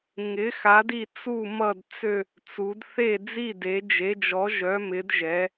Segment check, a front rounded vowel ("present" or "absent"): present